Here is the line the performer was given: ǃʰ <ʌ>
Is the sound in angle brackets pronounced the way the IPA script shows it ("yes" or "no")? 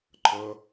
yes